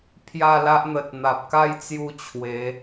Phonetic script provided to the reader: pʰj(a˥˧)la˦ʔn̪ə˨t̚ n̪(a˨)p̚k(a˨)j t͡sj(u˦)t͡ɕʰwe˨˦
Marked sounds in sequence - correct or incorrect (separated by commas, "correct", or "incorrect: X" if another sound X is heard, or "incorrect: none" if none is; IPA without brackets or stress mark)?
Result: correct, correct, incorrect: a˥˧, incorrect: u˥˧